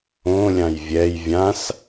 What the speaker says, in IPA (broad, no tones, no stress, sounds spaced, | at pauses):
õ lʲ ã j vʲ ɛ j vʲ ã s